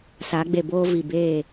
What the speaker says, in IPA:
s a˨˦ ɡ͡b e˨ b oː˦ v i˨ b eː˦˨

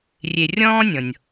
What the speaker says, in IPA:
rʲ e˨ rʲ ɔ̃ː˥ nʲ ɔ̃˩ nʲ

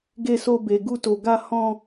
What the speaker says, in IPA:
ɡ e˧ s o˧ b e˨ ɡ u˧ t o˨ ɡ a˧ h ɔ̃˧

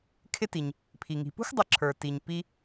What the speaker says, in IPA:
kʰ ɪ˦ t i˩ ɲ | pʰ i˩ ŋ i̤˩ p ṳ˥ x dˤ ʌ˨ ǁʰ ə˞˩ t i˩ ɲ p i˨

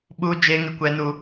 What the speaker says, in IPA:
ɓ u˦ d͡ʒ eː˦ ŋ ɪ˦ kʷ ɛ˦ n u˦

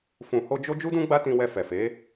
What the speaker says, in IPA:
f ũ˨ h o˧ d͡ʒ o˦ d͡ʒ u˦ d ũ˦ ɡ͡b a˦ t ĩ˧ w ɛ˧ f ɛ˨ f e˨˦

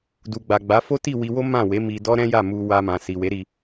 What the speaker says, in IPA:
d u˨ ɡ͡b a˨ ɡ͡b a˨˦ f o˦ t i˦˨ w i˧ w o˦ m ã˦˨ w e˨˦ m i˧ d ɔ˦ ɾ ɛ̃˦ j a˦˨ m u˧ w a˧ m ã˨ s i˨ w e˨˦ ɾ i˧

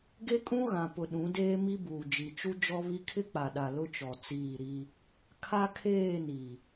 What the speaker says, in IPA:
ɡ e˦ kʼ ũ˦ ɣ ã˨ p ʊ˨ ɗ ũ˨˦ d eː˦ m i˦ b uː˨ d͡ʒ i˨ t͡ʃ u˦ d͡ʒ ɔ˦ β i˦ kʰ ɪ˦ k͡p a˨ ɗ a˨ l ʊ˦ t͡ʃ ɔ˨ t͡s iː˦˨ ɾ i˦ | kʰ a˦ kʰ eː˦˨ n i˨

